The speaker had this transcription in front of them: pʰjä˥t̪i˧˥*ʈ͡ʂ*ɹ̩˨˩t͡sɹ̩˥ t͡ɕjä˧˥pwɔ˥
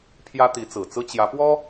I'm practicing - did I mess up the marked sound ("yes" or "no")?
yes